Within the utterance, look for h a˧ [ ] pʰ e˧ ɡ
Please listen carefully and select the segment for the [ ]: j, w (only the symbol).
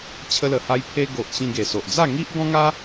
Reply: j